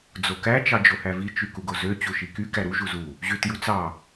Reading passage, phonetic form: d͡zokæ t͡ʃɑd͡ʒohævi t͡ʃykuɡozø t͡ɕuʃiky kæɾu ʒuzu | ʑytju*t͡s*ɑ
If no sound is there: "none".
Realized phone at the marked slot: t͡s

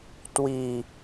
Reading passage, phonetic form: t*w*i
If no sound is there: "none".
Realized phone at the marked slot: w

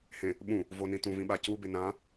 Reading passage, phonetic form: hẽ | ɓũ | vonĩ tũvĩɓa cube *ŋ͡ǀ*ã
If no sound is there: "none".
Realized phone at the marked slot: n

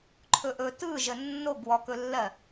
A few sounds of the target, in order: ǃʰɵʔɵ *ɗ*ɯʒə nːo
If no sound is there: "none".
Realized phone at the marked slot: t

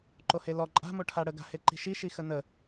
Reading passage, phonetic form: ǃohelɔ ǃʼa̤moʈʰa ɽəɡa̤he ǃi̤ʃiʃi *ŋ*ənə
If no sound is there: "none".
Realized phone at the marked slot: x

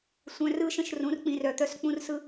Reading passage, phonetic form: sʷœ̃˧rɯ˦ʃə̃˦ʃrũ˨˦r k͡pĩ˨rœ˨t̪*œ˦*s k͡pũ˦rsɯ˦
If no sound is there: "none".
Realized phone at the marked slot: œ˧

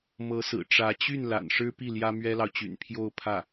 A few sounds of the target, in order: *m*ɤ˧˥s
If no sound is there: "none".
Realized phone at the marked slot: m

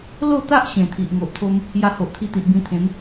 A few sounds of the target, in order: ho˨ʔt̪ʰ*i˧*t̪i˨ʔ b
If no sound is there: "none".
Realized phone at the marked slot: i˧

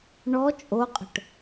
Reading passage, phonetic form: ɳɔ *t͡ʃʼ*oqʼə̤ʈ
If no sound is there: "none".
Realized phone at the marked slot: t͡ʃʼ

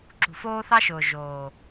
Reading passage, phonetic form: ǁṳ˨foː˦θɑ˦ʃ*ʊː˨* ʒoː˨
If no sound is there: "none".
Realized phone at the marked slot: ʊː˨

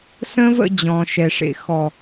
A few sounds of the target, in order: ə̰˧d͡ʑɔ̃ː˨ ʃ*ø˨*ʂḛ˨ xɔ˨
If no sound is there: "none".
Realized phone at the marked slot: ɛ˨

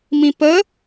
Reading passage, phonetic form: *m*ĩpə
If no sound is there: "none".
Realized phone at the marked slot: m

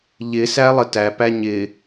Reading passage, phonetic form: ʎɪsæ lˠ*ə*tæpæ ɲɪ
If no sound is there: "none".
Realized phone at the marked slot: ə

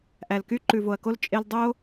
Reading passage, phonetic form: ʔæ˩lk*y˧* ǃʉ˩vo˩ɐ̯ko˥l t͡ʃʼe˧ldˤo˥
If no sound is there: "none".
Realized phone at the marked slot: y˥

